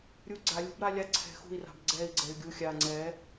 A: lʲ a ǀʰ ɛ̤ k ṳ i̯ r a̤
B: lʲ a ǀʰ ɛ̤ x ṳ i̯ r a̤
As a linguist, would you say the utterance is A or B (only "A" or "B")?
B